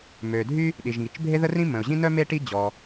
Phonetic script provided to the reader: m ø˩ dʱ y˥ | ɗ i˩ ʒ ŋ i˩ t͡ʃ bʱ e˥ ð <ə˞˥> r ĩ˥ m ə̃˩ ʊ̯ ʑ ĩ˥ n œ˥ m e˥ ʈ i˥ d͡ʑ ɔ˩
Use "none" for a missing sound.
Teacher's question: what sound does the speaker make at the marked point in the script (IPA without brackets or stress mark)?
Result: ə˥